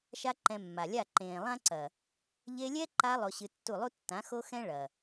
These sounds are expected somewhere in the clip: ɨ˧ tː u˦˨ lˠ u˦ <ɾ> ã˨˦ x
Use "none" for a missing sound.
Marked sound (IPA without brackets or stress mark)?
tː